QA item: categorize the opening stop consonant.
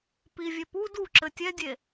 plain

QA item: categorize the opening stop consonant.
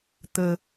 plain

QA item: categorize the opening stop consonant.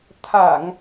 aspirated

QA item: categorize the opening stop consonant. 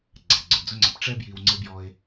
click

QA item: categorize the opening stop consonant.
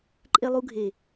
click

